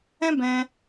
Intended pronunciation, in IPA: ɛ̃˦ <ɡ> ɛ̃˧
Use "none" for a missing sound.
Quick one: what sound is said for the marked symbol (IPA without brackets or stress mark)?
b